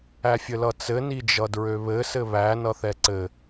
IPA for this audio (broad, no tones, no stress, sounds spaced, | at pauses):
æ fʲ ɘ l ʌ t͡s ɘ n i d͡ʒ ʌ d ɹ ø β ɘ s ɘ β æ n ʌ θ ɛ ǀ ɘ